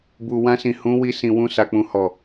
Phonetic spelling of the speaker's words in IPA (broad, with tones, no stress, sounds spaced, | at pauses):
b u˨ w ã˧ s ĩ˨ h ũ˨˦ w i˧ s ĩ˨ w ũ˧ s a˨ k͡p ũ˨ h ɔ˨